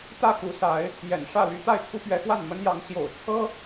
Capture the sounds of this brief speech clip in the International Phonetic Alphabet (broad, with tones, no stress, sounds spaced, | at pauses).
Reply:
t̪ ä˥˨ k u˨˦ s a˨˦ ɪ̯ | j ɛ̰˨˩ n ʂ ä˥˨ l y˦ t̪ a˥˨ ɪ̯ t͡sʰ u˦ p ɥ ɛ˨˦ x w a˥˨ n m ə˦ n j ɑ˨˦ ŋ ɕ j o̰˨˩ ʊ̯ t͡sʰ ɤ˦